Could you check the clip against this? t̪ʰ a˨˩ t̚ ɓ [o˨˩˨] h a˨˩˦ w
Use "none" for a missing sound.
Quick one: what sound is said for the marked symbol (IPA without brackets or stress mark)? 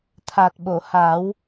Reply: o˨˩˨